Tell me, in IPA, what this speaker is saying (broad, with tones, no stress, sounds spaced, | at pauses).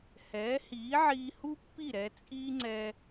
h ɛː˩˥ h iː˩˥ ʕ iː˧ h u˥ pː i˥˩ ɾ ɛ˧ t͡sʼ iː˥ ŋ͡ǀ ɛ˧